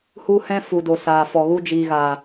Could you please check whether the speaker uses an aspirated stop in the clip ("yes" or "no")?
no